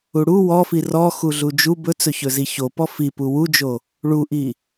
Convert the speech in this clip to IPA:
u ɽ u w ɔ f i r ɔ x u ɮ u d͡ʒ u b ɵ t͡s ɵ ç ɵ z i ç o p ɔ f i p u w u d͡ʒ o | ɭ u ʔ i

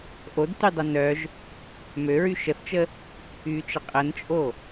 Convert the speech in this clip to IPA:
ʔ o d t y dˤ œ n œ ʒ | m ø ɹ y ʃ ə θ t͡ʃ ə | y t͡ʃ ə qʼ ə n t͡ʃʼ o

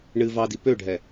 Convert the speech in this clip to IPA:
ɳ ɨ v ɑ d i p ø ɖʱ ɛ

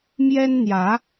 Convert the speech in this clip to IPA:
m j ɛ˦ n n̪ j ä˨˦

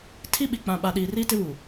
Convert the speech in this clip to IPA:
tʰ i˦ ɓ i˨ k͡p ã˨ ɓ a˨ ɗ iː˨ r iː˦ t ɪ˦ β u˨

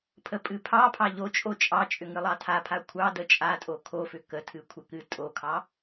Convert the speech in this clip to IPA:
pʰ ə pʼ ɨ pʰ ɑ pʰ ɑ ʎ o t͡ʃʼ o t͡ʃʼ ɑ t͡ʃʼ ʏ ŋ ɨ lˠ ɑ tʰ a pʰ a kʷʰ ɑ d ə t͡ʃʼ a tʼ o kʰ o f ʏ k ə tʰ ɨ kʷʰ ə k ɨ tʼ o kʰ ɑ

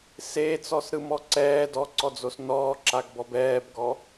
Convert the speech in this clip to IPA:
s e t͡s ɔ s ɾ ɯ m ɔ ǀ ɛː d ɔ ǀ ɔ d͡z o s n ɔː ǁ a ɡ b ɔ b ɛː b ɡ ɔ

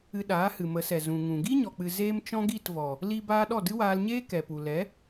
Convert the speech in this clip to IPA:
ɨ˧ ɗ aː˨˦ h ɨ˨ m ə˨˦ s ɛ˨ z ũ˨ ŋ ũ˨ ɡ i˦ ɲ ɔ˨ k͡p ɨ˨ z eː˦ m t͡ʃ ɔ̃˦ ɡ i˦˨ t v ɔ˨ | l i˦ b aː˦ ɗ ɔ˦˨ d ɨ˦ w aː˧ l ɲ eː˦ k ɛ˨ p u˨ l ɛ˨˦

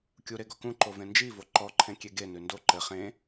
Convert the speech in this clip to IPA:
kʲ u ɾ e ɡ ɔ k ũ ǃ o v ẽ n d͡ʒ i v o ǃ ɔ ǃʰ ẽ kʲ e ɡ e n ʉ n d o ǃ ɘ χ ẽ

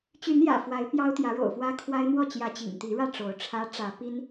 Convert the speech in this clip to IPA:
t͡ɕ y˨˦ n j ä̰˨˩ f w a˨˦ ɪ̯ p j ɑ˦ ʊ̯ t̪ j ä˨˦ ɻ o̰˨˩ ʊ̯ f w ä˦ kʰ w a˦ ɪ̯ n̪ w ɔ˥˨ t͡ɕ j ä˨˦ t͡ɕ ḭ˨˩ ŋ t̪ i˨˦ ɻ ä˥˨ ʈ͡ʂ o˨˦ ʊ̯ ʈ͡ʂʰ ä˦ ʈ͡ʂ ä˨˦ p i˦ n

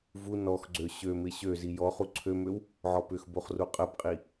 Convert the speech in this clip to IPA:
v u n ɔ x ɡ͡ǀ ø ɕ ø m ɪ ɕ ø z i j ɔ χ u ǀʰ ø m ø w | ʕ ɔ p ʏ x b o χ r u qʼ ə b qʼ i

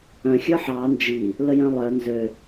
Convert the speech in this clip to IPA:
œ̃ xʲ ə˞ ħ ɑ n d͡ʒ i | l ə j œ̃ lˠ œ n z ø

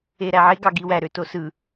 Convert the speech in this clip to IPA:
e ɾ æ ʕ e ɡ ɑ ɡ i w æ ɾ ø t o s ɯ

